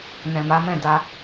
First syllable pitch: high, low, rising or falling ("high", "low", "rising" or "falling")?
low